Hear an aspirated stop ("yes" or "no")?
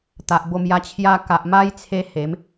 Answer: yes